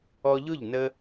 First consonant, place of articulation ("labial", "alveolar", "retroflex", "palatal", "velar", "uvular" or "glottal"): palatal